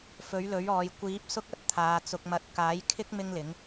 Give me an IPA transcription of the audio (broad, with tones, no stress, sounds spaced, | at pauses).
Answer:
f ɵ˨˥ ɥ l ɵ˨˥ ɥ ɔː˨ j kʷ iː˨˥ p̚ s ʊ˥ k̚ ɐ˥ t̚ t̪ʰ aː˨ t͡s ʊ˧ k̚ m ɐ˧ t̚ k aː˨˥ j kʰ ɪ˥ k̚ m ɪ˥ ŋ l ɪ˨˥ ŋ